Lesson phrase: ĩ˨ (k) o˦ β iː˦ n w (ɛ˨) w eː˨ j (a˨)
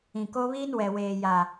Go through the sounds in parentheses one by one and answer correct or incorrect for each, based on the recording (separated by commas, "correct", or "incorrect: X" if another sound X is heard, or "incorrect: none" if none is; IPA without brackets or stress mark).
correct, correct, correct